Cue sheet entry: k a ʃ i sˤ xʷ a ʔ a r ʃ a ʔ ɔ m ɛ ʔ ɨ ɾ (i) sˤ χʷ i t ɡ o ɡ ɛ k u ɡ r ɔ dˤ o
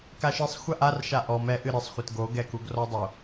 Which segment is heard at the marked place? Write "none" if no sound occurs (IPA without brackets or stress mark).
ɨ